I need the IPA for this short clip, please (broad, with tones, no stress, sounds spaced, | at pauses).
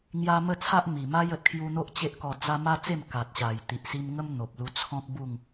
ŋ j a˧ m ə˥˧ t͡sʰ a˦ ʔ m i˨˩ m a˦ j ə˨ t̚ kʰ j u˧ n̪ o˦ ʔ t͡ɕ e˦ ʔ k ɔ˧ d͡z a˦ m a˦ t͡s e˥˧ m k a˨ t̚ ɕ a˨˩ j t̪ i˨ ʔ s i˧ m ŋ ə˦ m n̪ o˨ p̚ l u˧ t͡sʰ ɔ̃˦ k̚ b u˥˧ ŋ